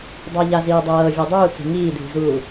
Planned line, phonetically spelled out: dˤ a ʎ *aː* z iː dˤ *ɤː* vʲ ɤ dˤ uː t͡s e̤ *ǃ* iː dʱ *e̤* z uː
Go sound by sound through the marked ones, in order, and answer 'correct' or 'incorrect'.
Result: incorrect, correct, incorrect, incorrect

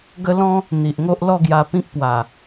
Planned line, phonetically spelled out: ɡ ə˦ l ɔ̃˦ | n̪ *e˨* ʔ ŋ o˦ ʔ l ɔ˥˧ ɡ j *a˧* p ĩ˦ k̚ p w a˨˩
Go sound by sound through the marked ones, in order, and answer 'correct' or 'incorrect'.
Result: incorrect, correct

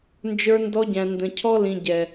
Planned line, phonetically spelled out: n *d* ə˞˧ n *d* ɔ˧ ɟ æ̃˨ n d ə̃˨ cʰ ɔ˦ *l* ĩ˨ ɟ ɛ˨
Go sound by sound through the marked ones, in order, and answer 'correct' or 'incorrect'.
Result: incorrect, correct, correct

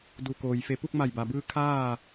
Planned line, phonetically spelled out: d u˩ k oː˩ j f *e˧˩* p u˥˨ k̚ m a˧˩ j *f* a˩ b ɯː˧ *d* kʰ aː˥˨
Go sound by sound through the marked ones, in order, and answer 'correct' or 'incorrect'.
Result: correct, incorrect, incorrect

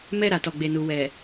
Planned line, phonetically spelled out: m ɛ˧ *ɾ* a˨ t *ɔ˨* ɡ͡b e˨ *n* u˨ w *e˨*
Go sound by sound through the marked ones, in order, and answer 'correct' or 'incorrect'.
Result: correct, correct, correct, incorrect

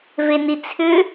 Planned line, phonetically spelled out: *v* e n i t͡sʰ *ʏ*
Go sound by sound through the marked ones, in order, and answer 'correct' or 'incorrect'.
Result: correct, correct

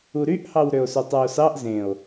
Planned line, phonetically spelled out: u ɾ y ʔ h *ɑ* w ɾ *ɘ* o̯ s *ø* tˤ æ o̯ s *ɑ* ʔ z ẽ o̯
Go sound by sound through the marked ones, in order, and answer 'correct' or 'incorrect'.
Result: correct, incorrect, correct, correct

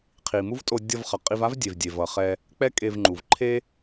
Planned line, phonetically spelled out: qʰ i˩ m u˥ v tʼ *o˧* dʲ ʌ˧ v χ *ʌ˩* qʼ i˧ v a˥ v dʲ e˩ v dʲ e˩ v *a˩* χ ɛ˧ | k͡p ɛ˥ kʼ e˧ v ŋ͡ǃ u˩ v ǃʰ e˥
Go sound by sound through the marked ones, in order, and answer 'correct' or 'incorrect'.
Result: correct, correct, incorrect

